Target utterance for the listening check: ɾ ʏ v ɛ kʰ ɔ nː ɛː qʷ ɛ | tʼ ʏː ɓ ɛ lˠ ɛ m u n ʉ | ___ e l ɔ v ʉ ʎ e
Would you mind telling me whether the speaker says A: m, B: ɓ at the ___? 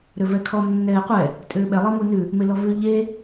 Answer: A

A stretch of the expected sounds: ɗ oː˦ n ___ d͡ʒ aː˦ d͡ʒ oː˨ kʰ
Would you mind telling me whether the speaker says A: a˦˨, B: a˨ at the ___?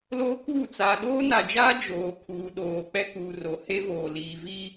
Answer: B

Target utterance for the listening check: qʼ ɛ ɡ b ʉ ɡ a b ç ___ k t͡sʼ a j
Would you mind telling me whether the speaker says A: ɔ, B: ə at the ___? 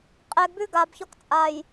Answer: A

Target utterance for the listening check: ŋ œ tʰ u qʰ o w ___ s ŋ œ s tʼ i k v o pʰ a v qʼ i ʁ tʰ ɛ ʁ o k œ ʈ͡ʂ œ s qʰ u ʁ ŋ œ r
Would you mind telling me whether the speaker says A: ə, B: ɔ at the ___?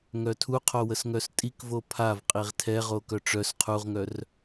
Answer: A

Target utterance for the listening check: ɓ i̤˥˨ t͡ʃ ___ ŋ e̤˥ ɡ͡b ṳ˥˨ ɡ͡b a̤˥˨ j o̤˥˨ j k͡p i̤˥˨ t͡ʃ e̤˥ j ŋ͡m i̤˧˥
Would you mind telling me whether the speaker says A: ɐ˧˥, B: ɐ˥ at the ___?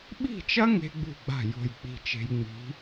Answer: B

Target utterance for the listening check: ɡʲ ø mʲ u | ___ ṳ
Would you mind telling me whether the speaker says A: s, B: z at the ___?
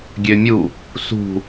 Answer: A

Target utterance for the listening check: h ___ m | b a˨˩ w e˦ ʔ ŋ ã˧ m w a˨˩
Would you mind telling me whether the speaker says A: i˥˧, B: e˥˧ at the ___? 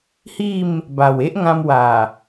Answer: A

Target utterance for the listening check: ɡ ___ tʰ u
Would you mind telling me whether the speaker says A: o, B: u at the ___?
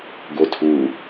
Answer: A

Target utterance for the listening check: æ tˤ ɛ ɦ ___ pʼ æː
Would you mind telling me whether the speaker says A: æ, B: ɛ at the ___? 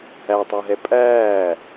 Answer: B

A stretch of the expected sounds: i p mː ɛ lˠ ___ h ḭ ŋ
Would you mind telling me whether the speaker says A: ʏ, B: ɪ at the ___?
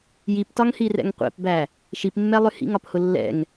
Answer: A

